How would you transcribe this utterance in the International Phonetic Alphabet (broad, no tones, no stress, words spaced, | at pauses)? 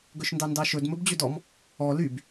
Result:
ɡɵʃndɑndɑʃɵd mɵbd͡ʑødɔm | ɔ lyb